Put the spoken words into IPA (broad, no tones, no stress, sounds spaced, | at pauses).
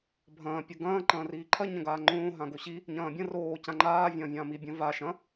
bʱ ɐ̃ː pʲ ɐ ɡ ɐ̃ː ǃ ɐ̃ː r iː ǃʰ ɐ ɲ ɐ̃ ɡ aː ŋ͡ǃ õː ɦ ã ɡ o ɕ i | ɲ ɐ̃ː bʲ ɐ̃ r oː c ã ŋ͡ǃ aː vʲ ɐ̃ː vʲ ã m i bʲ ɐ̃ v a ʃ ɐ̃